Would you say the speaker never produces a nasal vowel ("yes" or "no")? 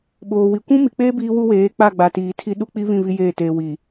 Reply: no